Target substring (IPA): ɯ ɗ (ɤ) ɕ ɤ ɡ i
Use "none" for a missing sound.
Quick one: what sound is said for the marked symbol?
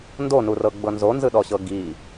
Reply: ɔ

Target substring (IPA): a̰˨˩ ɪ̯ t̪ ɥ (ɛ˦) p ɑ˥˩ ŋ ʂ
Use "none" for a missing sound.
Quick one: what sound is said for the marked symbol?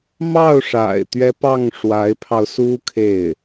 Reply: ɛ˦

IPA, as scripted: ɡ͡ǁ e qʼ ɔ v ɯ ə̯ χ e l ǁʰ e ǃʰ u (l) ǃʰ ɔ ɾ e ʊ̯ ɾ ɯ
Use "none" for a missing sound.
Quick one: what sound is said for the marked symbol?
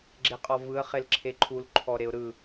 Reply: l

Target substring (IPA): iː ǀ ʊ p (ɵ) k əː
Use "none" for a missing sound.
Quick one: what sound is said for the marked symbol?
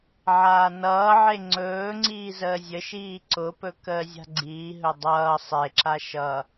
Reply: ɵ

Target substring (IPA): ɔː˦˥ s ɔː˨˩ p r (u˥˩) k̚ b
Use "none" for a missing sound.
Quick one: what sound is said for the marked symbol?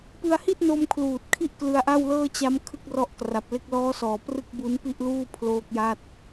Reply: ɯ˥˩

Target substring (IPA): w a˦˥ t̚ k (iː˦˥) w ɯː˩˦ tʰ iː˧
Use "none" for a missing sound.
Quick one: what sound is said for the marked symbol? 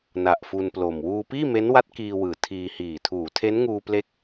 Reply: iː˧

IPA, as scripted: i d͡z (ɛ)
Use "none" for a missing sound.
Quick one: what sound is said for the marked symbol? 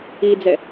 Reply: ɛ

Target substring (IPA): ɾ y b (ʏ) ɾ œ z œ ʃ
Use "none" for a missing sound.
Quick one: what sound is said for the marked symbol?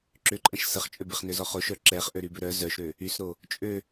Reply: ʏ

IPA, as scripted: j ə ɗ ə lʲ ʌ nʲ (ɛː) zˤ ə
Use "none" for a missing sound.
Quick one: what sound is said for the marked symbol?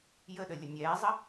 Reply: ɛː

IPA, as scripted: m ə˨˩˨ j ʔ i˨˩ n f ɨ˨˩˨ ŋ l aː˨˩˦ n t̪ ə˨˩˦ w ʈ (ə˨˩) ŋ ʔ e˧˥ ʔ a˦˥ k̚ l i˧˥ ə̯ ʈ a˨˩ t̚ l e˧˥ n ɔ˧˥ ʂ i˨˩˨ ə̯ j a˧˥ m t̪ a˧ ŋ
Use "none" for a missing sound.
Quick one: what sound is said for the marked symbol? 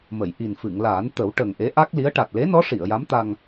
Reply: ə˨˩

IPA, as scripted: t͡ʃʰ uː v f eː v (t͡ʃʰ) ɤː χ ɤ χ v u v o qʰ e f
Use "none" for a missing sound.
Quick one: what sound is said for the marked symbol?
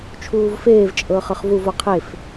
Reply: t͡ʃʼ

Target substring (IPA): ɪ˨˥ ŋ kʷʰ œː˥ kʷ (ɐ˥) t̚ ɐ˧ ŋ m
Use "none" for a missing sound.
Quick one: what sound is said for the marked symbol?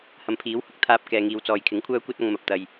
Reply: ɐ˥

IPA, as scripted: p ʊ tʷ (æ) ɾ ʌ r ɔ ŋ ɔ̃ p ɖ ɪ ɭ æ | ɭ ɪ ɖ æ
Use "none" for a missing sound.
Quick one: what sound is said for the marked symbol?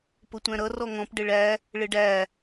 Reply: æ̃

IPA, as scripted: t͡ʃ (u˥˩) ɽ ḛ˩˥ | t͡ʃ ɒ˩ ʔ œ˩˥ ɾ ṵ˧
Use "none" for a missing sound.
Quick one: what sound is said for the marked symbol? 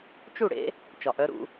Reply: u˥˩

